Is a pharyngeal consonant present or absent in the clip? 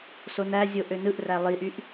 absent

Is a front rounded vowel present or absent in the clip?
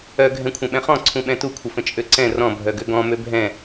present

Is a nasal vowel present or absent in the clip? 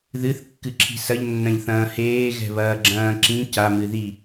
present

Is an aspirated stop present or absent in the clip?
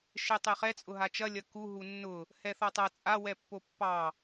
absent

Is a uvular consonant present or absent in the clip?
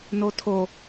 absent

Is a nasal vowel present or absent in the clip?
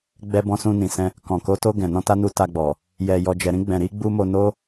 present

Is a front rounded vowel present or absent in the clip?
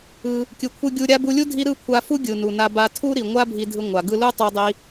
absent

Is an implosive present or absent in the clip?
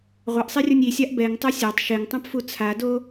absent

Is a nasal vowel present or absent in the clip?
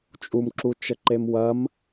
absent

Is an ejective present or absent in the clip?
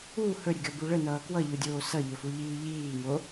absent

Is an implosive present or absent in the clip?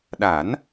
present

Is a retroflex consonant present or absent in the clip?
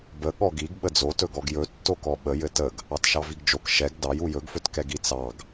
absent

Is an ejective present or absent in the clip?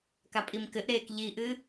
present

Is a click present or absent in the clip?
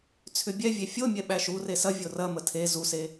absent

